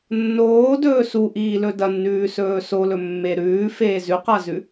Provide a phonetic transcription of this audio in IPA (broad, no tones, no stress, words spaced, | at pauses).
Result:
nːoːdɵː suʔiːlɵ dɐnːʉːsɵː solɵmːe ɾʉːfeː zʉqazʉ